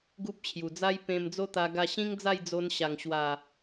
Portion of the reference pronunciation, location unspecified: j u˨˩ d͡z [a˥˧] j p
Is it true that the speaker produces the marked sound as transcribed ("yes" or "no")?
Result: no